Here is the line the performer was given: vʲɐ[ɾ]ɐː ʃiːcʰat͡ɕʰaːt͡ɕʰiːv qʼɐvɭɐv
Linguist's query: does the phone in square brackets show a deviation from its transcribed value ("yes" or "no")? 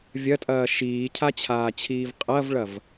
yes